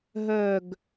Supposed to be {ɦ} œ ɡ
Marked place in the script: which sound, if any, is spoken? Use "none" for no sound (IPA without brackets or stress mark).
ɦ